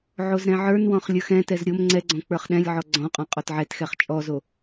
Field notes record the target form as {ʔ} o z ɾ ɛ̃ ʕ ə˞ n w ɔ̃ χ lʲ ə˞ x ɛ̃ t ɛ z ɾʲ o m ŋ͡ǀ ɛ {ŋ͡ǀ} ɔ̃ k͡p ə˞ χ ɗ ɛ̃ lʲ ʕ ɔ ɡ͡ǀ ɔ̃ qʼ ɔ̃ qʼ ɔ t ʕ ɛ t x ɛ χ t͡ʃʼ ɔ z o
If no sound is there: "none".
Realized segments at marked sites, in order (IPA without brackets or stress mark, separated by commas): ʕ, ɡ͡ǀ